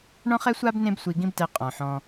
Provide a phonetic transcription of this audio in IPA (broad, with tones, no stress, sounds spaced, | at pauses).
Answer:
ɳ ɔ̃˦ χ ɛ˦ sʷ a˦ b n ẽ˦ b sʷ i˧ ɡ ĩ˦ b t ɛ˧ qʼ ɔ̃˨ ħ ɔ̃˧